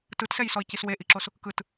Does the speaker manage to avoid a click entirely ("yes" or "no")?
no